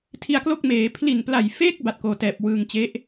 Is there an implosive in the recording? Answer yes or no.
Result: no